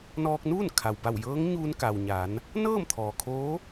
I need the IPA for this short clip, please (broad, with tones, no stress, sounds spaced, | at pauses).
n ɔː˧ k̚ n uː˥˨ n kʰ a˩ w b a˧˩ w j ɤː˧˥ ŋ ɲ uː˧ n k a˩ w ɲ a˩˧ n | n ɤː˥˨ m t̪ʰ ɔː˩ kʰ oː˧˥